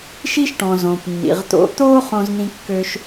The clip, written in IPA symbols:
ʃ i˦ ʃ ʈ ɔ̃˨ z õ˨ p nː ḭ˨ ʁ t̪ o̰˦ t̪ o˦ χ õ˦ z n̪ ĩ˦ kː ø˦ ʃ

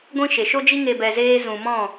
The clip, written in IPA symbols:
ɡʷ ĩ˦ ʃ e˨ ʃ o˦ d͡ʒ i˦ ŋ e˧ b ɛ˧ z eː˦ z ũ˨ m ɔ̃˦˨

